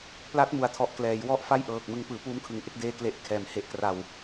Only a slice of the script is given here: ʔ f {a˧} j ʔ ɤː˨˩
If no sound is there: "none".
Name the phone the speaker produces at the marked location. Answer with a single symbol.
a˥˩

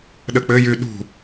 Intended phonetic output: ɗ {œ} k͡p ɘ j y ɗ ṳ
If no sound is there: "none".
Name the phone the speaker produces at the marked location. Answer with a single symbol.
ə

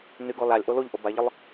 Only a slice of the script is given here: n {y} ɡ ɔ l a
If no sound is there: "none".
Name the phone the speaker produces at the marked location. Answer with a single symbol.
y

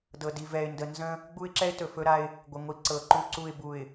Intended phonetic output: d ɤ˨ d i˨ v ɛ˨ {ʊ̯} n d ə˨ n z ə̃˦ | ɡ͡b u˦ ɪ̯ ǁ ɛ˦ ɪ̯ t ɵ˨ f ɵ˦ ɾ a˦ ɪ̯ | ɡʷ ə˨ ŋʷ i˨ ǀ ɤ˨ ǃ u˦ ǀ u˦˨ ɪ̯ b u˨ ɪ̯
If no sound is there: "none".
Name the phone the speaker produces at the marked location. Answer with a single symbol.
ɪ̯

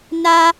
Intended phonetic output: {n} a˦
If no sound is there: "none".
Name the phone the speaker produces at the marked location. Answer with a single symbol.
n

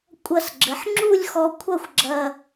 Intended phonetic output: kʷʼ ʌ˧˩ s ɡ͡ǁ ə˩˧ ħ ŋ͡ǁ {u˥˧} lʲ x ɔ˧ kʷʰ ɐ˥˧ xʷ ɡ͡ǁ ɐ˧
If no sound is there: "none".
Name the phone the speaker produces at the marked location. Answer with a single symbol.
u˥˧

